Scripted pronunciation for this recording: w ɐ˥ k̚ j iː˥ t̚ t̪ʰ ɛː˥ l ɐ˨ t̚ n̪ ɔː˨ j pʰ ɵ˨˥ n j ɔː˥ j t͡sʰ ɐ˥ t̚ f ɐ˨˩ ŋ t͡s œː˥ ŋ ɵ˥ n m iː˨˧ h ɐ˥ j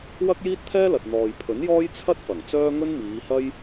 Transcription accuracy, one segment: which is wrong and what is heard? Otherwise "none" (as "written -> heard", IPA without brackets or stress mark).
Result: none